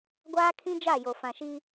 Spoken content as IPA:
ɡʷaː˦kʰĩ˦ d͡ʒa˦˨jo˨ fã˨ʃi˦

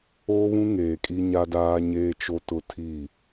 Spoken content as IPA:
oː˦βũ˦ ŋeː˨kʼi˦ ɲa˦daː˦ɲeː˦t͡ʃo˦ tʊ˦tʰi˦˨

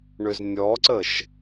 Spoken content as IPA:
ɳʏznʲɔǀəʃ

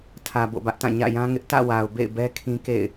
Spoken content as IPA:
tʰä˨ bo̰˦˨bä˦ʔtã˦˨ ɲä̰˦˨jã˦ŋɪ˦ʔ tä̰˦˨wa˨ʊ̯ bḛ˦˨ɪ̯bɛ˦ kʰĩ˦kḛ˦˨ɪ̯

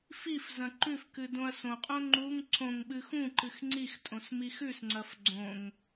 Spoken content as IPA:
fif zɐ̃ǃʉfkɨ dõɐ̯sõqʼõ ŋ͡ǃuŋ ǀõŋ ɓɨxũǃɨx ŋ͡ǀix tʼõsmixʉsŋ͡ǀɐf ɡ͡ǀõŋ

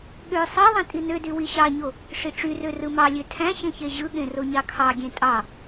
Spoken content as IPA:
ɠø sˤɑðˤẽ tʼinødy wiɕɑɲo | ʂiʈ͡ʂyrø rɯmɑlʲø tʰæ̃ ɕẽçeʑɯɠẽ roɲɑkʰɑɡʲẽ tʼɑ

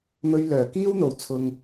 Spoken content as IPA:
mɵ˧ɥ lœː˨˩kiː˥wn̪o˨˩w t͡sʰʊ˨ŋ

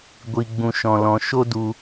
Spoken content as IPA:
ɡʷi˧ɡ͡bũ˧ ʃɔ̃˧lɔ̃˧ ʃo˦du˧

